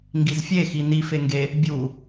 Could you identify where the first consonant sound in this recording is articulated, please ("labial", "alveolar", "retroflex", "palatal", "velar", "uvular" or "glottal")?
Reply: velar